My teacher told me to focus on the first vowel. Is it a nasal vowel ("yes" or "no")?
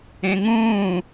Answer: yes